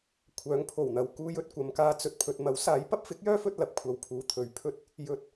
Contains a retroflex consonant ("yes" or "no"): no